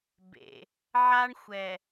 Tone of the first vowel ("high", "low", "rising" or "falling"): low